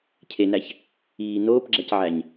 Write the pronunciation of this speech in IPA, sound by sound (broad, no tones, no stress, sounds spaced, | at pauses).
cʰ e n æ ç | iː n oː p ɡ͡ǁ æ c ʕ æ ɲ